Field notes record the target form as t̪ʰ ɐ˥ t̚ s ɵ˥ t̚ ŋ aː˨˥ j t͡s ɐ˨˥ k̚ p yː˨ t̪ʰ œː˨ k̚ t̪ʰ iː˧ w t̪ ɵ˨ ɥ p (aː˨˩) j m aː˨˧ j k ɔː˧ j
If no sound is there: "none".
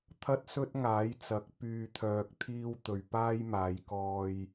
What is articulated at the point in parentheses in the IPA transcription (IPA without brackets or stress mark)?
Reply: aː˥